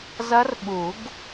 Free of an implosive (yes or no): no